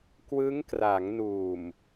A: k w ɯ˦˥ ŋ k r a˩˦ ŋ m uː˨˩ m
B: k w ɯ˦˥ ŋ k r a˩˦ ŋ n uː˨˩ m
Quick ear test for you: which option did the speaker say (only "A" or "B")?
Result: B